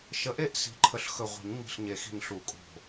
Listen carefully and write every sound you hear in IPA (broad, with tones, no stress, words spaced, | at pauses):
ʃə˨˦ʔe˥˧ʔ si̤˨˦ǃʰə˧˩ɬxɵ˧˩ ʁʷi̤˨˩˦ɲŋ͡mi̤˧˩ɬɲe˨˩˦xi̤˧˩ɲ ɬu˨˩˦kʼo̤˧˩